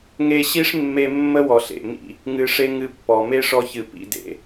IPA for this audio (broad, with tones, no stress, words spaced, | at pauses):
ŋe˧ɕi˦ʂ mːe˧mːə˦wɔ˨ ɬḛ˨mḭ˦˨ | ŋɨ˧ʂe˦ ŋɨ˧pːɔ˨ me˦ʂɔ˧çɨ˨ pḭ˦˨dḛ˦